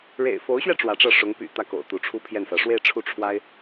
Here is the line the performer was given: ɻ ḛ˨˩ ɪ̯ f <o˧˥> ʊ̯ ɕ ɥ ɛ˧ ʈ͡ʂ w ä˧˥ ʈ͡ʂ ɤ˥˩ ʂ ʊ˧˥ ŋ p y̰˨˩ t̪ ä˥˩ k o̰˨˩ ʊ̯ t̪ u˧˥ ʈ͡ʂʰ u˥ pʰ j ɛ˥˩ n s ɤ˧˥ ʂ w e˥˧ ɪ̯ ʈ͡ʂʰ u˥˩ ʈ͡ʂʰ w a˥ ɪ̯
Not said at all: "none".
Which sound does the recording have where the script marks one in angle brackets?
o˧˥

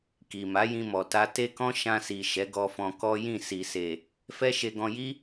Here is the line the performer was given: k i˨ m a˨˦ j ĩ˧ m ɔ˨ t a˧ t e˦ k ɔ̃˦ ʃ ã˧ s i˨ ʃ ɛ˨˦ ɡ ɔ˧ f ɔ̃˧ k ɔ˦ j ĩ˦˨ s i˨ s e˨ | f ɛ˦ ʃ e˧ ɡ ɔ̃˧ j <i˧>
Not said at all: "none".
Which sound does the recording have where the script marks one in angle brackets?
i˦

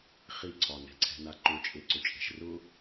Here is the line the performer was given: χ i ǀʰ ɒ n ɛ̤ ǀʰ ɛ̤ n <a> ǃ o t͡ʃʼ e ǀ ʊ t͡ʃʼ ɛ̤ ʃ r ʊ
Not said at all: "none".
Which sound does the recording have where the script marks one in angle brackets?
a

